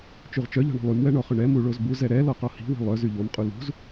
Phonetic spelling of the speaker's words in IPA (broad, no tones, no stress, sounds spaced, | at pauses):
t͡ʃ y ʁ t͡ʃ œ ʎ ɔ̤ ɳ ɔ̤ lˠ y m w ɛ ɳ ɔ χ ʏ ɳ ɛ m u ɭ o z b u z ɛ ɾ ɛ l ɔ q ɔ h i̤ w i̤ lˠ œ z y ʎ o m qʼ u l ṳ z